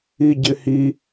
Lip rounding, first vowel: unrounded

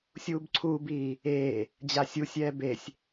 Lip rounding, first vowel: rounded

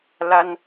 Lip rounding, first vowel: unrounded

